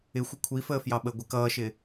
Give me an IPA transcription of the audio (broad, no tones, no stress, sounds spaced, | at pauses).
ɪ xʷ ɪ kʷʰ i f əː f j ɑ ɓ ə ɡʷ ɪ k ʌː ʃ ɪ